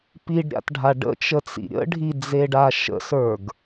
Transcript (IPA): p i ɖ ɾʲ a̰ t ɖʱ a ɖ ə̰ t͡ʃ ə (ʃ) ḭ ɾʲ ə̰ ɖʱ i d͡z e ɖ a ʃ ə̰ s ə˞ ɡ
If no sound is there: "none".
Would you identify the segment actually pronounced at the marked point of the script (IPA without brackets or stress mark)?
t͡s